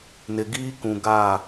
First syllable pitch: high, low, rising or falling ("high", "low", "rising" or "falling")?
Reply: low